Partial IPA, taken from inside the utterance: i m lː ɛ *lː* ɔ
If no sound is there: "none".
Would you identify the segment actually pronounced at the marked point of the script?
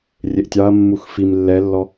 lː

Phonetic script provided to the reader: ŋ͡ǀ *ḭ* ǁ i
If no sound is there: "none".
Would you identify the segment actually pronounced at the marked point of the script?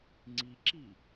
i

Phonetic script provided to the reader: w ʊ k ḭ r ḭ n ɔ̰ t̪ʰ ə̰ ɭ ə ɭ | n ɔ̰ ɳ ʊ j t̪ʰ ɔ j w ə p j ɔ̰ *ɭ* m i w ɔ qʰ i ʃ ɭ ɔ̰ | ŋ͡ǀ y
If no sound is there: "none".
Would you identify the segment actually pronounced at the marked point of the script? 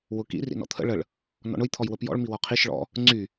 ɭ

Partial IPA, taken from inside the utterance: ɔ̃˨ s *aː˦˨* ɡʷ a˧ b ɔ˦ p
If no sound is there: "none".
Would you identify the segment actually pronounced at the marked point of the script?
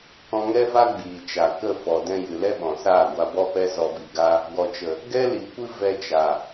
aː˦˨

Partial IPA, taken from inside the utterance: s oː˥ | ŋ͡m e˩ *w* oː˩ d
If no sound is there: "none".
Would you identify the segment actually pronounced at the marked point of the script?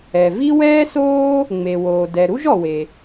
w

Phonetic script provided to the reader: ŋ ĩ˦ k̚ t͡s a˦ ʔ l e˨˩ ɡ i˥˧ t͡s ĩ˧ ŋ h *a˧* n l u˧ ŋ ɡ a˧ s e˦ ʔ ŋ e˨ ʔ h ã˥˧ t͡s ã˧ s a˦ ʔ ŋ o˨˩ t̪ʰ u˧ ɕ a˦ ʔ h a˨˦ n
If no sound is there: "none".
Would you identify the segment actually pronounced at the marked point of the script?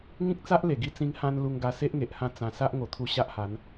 ã˧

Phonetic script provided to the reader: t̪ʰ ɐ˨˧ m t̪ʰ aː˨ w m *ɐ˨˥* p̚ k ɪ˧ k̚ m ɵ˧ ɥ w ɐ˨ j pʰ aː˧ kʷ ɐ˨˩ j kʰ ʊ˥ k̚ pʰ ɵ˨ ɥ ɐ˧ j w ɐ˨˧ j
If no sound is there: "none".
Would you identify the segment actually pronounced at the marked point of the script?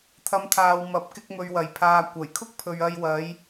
ɐ˨˥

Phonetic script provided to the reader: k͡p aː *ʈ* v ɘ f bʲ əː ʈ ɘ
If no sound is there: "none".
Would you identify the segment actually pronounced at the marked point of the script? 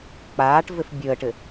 ʈ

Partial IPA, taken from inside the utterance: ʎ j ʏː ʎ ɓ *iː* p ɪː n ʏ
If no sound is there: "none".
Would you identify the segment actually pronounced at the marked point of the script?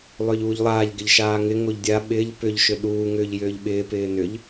ɪː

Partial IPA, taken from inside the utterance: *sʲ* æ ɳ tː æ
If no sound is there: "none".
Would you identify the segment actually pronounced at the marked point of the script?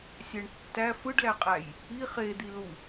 sʲ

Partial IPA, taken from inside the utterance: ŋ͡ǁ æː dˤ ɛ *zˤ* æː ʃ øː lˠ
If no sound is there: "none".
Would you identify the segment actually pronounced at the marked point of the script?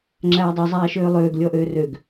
zˤ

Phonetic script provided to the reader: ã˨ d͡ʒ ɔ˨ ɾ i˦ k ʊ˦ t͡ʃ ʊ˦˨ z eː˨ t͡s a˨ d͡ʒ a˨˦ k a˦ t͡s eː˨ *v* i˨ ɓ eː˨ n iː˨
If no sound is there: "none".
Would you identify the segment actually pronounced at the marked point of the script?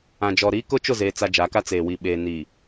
w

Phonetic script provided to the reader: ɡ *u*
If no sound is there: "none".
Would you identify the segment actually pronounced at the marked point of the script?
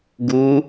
u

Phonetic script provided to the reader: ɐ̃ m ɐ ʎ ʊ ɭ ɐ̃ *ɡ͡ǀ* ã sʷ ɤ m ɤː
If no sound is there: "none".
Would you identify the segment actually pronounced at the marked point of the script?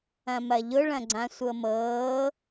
ɡ͡ǀ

